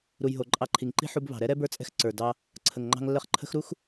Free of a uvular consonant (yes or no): no